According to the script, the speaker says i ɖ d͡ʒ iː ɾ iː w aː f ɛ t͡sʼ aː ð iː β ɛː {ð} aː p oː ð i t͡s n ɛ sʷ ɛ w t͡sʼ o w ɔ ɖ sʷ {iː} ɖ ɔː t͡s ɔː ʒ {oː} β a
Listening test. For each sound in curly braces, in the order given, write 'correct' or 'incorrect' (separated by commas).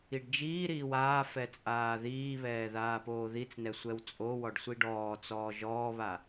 correct, incorrect, incorrect